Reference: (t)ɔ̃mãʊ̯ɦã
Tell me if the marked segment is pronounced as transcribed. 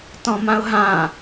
yes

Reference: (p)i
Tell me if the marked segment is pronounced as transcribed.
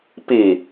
yes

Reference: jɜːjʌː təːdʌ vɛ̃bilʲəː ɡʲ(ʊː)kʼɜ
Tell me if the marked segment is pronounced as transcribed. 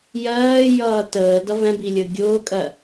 yes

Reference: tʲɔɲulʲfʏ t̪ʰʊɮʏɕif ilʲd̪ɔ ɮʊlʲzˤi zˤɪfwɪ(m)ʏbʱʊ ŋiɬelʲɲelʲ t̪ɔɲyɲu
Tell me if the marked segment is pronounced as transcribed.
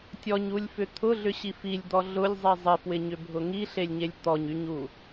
no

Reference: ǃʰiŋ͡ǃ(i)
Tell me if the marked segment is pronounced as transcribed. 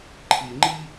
yes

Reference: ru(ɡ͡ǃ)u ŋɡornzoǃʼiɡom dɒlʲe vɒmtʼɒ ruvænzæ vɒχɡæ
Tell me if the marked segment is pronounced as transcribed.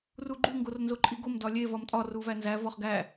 yes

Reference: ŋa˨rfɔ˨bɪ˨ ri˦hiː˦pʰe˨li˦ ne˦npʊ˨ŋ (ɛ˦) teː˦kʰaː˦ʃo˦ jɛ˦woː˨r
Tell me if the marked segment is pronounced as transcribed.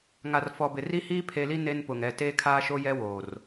no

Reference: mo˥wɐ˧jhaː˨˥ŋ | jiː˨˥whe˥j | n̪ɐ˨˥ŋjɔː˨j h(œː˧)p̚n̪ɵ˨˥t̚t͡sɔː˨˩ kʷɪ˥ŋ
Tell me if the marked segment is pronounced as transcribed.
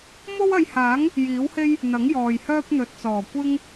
no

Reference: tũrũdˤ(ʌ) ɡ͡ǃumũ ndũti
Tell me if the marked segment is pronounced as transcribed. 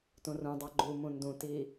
no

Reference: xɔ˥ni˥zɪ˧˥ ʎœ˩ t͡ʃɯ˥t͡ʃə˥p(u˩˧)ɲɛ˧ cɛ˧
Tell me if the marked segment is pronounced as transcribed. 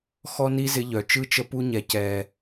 no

